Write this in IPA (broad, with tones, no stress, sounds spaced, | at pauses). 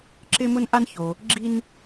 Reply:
ǁ ɪ˥ m ʊ˥ n ʔ a˥ n ç o˩ | ɡ͡ǁ i˧ n